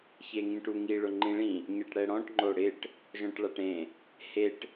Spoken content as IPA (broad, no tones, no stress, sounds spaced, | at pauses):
ç e ŋ ĩ ʈ u ŋ i ɭ ʊ ŋ͡ǃ ĩ ɭ ĩ | ɲ e ʈ ɽ ɛ ɽ ɔ̃ ʈ ŋ͡ǃ o ɽ ɪ ʈ | ʒ ɔ̃ ʈ ɭ a ʈ ẽ | h e ʈ